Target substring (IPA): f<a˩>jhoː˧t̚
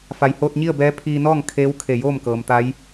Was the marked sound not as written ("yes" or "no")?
no